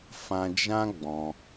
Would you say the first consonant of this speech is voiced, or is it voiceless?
voiceless